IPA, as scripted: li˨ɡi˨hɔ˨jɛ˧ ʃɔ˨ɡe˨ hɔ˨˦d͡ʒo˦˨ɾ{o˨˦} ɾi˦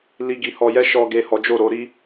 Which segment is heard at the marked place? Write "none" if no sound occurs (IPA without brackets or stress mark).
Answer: o˨˦